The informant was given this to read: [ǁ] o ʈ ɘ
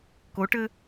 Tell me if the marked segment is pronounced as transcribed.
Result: no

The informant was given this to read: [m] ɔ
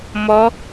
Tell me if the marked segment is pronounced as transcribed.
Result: yes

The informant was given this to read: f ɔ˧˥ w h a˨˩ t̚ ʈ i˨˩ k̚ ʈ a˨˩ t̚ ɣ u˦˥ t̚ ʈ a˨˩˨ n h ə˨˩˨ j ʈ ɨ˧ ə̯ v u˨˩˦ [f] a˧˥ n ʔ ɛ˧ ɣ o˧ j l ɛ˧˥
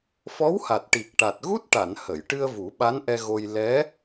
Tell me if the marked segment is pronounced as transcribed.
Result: no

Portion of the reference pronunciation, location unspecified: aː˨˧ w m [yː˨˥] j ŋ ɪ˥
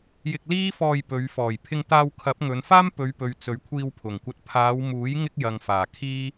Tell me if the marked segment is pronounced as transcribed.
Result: no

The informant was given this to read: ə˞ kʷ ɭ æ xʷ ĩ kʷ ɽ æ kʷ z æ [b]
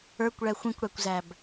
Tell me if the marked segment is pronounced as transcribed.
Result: yes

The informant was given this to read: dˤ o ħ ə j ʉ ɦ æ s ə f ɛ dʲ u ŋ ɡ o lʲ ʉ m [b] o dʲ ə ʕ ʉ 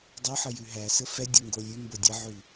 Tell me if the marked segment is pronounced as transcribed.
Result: yes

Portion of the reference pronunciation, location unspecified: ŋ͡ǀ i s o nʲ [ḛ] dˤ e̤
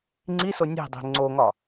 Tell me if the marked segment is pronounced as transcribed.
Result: no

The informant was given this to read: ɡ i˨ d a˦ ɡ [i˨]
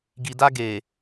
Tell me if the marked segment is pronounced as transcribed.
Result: no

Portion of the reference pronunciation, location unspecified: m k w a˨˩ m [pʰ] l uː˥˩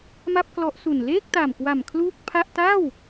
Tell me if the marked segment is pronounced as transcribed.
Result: no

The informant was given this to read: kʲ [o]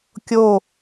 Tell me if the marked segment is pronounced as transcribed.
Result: yes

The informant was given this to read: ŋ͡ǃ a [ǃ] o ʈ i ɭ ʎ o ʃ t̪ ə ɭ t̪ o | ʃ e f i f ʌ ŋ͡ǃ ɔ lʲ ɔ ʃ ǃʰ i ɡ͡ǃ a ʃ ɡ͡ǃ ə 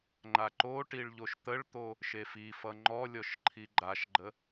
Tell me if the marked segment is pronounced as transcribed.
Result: yes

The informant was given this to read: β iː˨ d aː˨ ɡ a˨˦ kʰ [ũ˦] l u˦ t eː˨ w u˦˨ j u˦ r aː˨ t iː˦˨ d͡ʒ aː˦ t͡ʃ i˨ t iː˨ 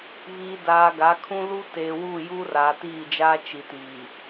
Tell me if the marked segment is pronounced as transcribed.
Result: yes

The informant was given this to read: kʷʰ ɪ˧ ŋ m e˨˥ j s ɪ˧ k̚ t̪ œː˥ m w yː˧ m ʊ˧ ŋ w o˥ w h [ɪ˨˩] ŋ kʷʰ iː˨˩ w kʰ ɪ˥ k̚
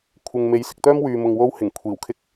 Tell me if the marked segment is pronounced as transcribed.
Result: yes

